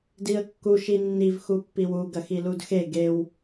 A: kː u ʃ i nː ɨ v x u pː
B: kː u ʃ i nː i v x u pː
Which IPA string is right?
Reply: B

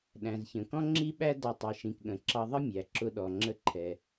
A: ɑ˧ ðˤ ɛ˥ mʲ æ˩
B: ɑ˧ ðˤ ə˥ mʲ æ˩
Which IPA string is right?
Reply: B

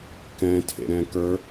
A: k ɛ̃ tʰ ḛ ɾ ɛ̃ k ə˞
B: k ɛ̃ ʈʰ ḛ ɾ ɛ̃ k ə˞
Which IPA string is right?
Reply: A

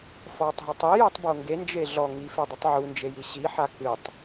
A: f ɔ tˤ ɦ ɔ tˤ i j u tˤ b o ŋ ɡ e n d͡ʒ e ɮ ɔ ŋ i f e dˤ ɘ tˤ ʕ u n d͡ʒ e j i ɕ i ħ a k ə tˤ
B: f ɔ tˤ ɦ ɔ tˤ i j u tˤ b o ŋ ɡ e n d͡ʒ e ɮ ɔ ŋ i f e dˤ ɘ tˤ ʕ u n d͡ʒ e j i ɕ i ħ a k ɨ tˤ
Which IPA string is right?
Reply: B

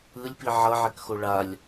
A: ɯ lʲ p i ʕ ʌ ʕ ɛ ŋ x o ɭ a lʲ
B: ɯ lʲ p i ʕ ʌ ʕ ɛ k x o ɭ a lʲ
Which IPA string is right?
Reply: B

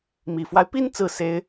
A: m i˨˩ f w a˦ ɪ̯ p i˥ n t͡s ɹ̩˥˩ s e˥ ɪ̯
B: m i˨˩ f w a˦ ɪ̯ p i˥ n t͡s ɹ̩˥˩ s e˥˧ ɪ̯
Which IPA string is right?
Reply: A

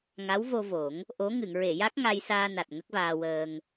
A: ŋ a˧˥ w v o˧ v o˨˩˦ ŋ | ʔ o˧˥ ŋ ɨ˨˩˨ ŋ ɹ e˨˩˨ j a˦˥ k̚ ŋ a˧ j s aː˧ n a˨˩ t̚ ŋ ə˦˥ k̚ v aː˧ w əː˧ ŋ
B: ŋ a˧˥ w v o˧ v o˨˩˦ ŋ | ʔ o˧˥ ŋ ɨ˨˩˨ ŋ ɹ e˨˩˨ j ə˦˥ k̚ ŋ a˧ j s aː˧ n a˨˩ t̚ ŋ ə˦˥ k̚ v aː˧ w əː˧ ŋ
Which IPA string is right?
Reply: A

